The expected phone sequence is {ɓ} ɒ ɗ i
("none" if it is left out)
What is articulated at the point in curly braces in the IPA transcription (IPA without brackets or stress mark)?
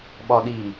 ɓ